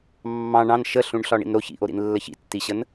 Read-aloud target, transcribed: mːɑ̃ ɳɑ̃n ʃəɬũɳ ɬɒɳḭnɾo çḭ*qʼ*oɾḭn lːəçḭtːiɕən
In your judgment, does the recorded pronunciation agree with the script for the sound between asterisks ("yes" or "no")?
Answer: no